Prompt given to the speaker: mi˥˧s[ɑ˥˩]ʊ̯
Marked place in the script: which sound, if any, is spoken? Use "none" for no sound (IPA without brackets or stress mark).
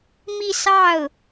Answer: ɑ˥˩